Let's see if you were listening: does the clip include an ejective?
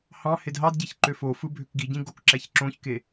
no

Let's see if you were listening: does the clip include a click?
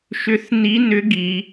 no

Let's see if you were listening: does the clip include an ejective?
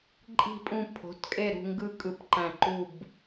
yes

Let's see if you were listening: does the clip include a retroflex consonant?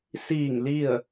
no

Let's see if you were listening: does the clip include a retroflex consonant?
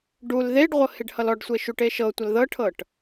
yes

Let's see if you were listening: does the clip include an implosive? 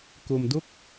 no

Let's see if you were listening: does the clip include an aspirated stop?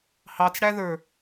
no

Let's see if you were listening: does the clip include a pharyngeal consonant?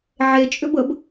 yes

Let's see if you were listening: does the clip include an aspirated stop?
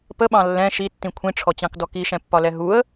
yes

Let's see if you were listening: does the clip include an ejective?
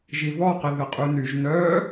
yes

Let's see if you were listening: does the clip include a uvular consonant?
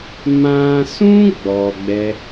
no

